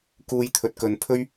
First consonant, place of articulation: velar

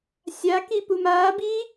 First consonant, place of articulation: alveolar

